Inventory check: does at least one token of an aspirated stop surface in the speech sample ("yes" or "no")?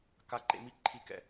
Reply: yes